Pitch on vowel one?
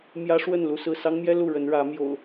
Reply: high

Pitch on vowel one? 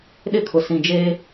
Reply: high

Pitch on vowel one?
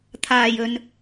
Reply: low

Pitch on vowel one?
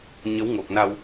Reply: rising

